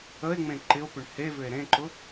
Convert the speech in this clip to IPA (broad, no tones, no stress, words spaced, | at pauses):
əe̯ŋ͡mẽ ǃɪo̯pʏɳ hevʏe̯ ɾẽǃʊ